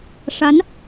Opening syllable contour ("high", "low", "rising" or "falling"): rising